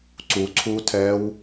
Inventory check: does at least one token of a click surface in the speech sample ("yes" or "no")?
yes